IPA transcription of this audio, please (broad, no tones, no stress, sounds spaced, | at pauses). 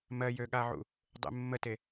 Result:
m ɜ j ø ɠ a ʕ ṵ | dˤ ḛ mː ə t e